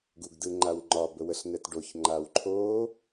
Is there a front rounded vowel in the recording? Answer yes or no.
no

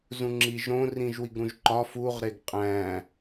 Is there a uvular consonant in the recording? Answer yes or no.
yes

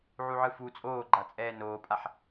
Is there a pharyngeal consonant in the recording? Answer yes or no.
yes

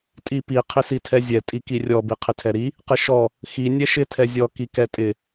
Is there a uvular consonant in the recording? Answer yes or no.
yes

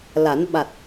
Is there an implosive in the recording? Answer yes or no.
yes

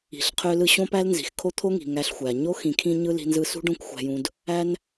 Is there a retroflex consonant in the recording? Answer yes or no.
yes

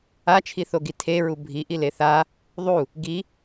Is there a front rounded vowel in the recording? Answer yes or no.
no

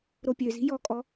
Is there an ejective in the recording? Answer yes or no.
yes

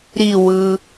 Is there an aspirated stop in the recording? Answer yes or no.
no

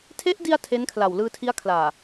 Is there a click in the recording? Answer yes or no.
no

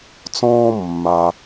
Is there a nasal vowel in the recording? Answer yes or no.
yes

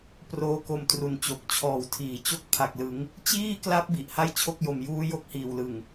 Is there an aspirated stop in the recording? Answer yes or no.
yes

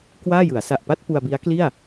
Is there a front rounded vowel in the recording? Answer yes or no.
no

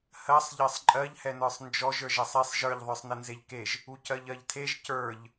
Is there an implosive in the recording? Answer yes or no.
no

